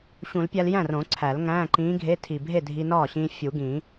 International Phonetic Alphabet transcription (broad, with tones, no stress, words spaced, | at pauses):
ɕũ˨˩˦lpʲæ˧l jæ̃˥˩rõ˨˩˦ ǀʰæ˨˩˦lŋæ̃ː˧˥˧ǃĩː˧˥ɡʱe˧˥˧ tʰi˨˩bʱe˥˩ dʱi˧nɒː˥˩ɕĩː˧ fʲu˨˩˦ɡĩ˨˩˦